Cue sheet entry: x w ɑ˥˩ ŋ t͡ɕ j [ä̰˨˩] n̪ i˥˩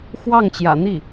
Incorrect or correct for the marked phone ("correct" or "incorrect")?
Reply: correct